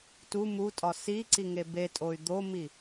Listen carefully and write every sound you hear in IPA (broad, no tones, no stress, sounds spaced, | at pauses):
t u m u tʼ ɒ s i ǀ i ŋ e b e tʼ o y̯ d̪ o m i